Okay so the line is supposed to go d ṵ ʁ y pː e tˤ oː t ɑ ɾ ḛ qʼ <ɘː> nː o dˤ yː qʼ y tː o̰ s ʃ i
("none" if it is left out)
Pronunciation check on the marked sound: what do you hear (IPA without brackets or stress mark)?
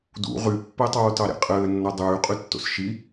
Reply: ɘː